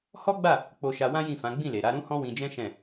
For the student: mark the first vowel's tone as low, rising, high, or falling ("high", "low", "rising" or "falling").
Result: high